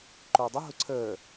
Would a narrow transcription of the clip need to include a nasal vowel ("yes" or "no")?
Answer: no